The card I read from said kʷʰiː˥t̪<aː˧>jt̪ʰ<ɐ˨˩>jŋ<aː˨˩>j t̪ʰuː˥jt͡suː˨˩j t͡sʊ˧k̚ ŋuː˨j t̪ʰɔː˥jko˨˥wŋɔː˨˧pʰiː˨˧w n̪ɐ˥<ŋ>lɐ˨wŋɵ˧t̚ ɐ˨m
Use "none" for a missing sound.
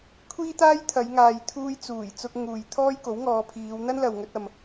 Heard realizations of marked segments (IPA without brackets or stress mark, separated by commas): aː˥, ɐ˨˧, aː˨, n